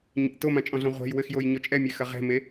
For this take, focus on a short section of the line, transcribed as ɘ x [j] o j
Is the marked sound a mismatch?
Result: no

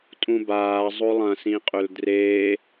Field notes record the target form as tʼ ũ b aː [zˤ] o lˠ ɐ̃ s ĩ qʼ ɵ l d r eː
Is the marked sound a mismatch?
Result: no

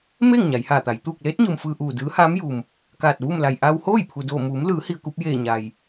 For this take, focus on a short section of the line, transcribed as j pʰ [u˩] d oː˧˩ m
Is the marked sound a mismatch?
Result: no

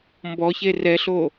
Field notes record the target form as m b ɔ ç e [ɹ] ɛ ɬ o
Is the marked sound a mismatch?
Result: yes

